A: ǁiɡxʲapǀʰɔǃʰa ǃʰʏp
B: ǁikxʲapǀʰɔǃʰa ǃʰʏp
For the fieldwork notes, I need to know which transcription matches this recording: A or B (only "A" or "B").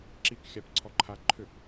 B